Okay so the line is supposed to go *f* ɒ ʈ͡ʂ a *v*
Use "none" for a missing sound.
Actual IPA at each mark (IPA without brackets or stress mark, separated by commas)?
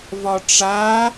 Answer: v, none